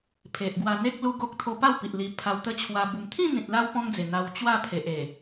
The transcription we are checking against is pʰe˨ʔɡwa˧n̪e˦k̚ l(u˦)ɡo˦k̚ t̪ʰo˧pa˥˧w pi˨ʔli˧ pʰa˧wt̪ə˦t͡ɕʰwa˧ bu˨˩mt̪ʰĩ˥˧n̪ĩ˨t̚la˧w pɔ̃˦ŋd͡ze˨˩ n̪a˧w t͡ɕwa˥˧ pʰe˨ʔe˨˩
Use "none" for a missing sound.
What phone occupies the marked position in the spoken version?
u˦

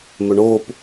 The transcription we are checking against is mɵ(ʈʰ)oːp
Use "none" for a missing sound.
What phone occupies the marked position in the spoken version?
ɳ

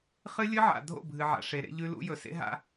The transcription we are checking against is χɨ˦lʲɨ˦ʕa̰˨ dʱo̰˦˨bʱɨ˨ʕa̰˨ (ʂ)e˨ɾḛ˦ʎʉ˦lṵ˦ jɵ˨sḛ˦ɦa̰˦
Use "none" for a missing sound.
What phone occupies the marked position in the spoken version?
ʂ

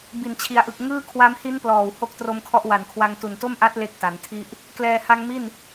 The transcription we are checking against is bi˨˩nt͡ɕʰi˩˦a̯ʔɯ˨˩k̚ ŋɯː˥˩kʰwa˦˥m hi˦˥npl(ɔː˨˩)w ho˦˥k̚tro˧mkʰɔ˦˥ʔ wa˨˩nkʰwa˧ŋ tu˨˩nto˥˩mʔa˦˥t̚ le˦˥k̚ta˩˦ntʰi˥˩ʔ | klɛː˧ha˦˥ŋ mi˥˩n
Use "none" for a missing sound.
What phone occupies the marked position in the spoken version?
ɔː˨˩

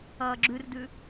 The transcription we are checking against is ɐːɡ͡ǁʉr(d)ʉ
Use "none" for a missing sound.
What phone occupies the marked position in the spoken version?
d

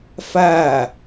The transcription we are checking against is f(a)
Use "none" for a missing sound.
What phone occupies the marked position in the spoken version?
a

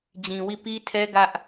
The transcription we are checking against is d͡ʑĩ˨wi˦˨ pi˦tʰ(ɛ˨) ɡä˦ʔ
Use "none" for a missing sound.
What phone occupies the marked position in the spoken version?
ɛ˦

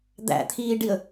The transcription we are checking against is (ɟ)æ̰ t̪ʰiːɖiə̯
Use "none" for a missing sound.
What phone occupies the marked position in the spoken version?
d̪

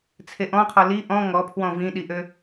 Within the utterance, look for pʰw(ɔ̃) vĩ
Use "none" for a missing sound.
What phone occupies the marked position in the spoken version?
ɔ̃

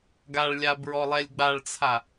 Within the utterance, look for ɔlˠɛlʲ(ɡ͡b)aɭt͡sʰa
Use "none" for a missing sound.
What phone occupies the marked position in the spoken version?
ɡ͡b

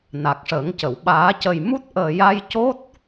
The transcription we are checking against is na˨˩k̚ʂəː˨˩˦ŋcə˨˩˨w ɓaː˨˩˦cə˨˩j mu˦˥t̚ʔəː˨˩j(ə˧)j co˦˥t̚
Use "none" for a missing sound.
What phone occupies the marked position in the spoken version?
a˧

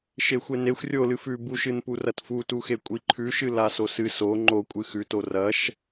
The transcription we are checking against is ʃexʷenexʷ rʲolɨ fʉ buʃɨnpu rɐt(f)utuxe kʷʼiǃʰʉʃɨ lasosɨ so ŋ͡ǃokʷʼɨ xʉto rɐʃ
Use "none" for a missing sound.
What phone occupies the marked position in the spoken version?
f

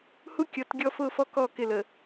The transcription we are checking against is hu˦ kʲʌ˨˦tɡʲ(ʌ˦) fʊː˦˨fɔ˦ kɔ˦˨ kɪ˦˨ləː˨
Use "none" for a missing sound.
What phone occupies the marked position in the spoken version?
ɔ˦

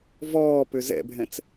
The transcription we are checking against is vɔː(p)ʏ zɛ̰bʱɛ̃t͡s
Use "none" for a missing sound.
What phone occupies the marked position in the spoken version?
p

